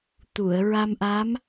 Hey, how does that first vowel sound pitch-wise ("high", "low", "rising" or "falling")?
low